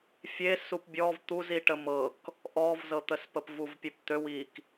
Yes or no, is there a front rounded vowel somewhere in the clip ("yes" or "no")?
yes